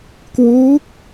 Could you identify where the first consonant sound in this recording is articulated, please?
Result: velar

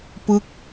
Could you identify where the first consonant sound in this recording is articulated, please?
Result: labial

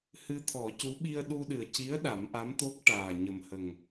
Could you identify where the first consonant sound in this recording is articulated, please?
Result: glottal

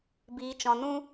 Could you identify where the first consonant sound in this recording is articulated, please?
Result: labial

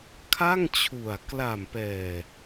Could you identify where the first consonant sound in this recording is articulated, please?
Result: velar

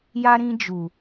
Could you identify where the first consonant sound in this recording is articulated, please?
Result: palatal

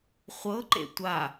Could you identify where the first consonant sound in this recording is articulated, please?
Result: uvular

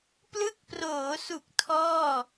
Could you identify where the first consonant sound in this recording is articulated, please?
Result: labial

